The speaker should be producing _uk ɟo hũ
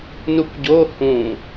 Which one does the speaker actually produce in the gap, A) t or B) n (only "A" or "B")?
B